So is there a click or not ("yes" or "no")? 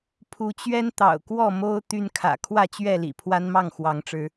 no